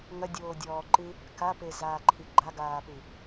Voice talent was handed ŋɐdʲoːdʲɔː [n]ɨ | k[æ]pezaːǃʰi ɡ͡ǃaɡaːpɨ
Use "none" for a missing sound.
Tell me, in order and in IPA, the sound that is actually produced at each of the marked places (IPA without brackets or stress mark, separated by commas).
ǃ, a